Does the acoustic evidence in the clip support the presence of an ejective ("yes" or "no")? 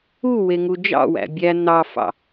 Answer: no